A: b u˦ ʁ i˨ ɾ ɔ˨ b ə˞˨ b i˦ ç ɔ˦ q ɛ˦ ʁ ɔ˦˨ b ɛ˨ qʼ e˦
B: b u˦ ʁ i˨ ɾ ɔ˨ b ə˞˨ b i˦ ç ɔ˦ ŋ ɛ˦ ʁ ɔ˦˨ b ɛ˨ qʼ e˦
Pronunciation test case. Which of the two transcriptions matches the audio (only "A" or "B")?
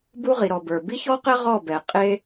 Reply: A